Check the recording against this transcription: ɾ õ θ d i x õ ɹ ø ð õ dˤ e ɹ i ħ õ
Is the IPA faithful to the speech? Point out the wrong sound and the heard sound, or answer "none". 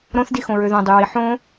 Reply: e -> y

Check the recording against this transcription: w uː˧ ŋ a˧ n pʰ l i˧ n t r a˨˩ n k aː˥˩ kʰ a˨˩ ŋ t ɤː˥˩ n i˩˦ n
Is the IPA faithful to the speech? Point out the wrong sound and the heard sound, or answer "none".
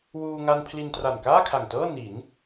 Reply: none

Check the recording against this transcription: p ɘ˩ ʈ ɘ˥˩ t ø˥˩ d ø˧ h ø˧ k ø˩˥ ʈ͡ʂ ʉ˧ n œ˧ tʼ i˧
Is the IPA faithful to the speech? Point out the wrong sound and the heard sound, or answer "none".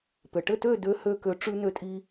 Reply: œ˧ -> ø˧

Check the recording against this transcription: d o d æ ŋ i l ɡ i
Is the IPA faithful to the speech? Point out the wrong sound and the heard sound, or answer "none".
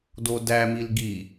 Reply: ŋ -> m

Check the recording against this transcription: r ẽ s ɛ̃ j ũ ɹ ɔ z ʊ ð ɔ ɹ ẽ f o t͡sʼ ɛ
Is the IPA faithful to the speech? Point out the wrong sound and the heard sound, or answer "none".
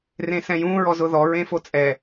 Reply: none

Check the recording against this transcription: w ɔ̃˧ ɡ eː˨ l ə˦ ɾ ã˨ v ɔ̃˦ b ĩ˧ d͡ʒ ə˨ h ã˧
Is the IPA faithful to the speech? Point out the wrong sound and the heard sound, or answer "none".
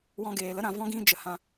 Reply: b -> ɡ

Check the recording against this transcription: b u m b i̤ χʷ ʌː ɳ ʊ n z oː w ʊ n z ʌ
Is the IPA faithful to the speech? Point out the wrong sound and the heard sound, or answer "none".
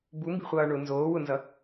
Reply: none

